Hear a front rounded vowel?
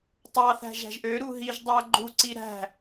yes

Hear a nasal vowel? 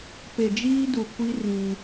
yes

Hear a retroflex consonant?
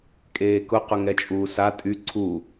no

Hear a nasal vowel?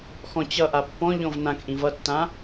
yes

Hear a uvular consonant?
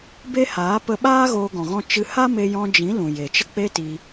no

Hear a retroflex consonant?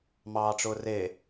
yes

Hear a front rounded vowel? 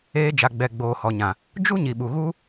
no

